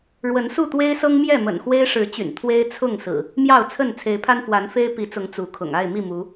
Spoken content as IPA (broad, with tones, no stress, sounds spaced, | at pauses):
ɻ w ə˨˦ n s u˥˨ t̪ w e˦ ɪ̯ s ɤ˦ ŋ m j ɛ˥˨ m ə̰˨˩ n x w e˦ ɪ̯ ʂ ɻ̩˨˦ t͡ɕ y̰˨˩ n t̪ʰ w e˦ ɪ̯ t͡sʰ ʊ˥˨ ŋ s ɹ̩˨˩ | m j ɑ˥˨ ʊ̯ t͡sʰ ə˥˨ n t͡sʰ e˨˦ ɪ̯ pʰ a˦ n f w a˨˦ n f e˦ ɪ̯ p i˨˦ t͡s ʊ˨˦ ŋ t͡s u˨˦ kʰ ʊ̰˨˩ ŋ a˥˨ ɪ̯ m i˥˨ m u˨˦